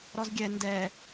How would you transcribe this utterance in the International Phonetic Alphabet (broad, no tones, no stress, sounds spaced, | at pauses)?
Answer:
ɾ ɔ z ɡʲ ɛ n d ɛ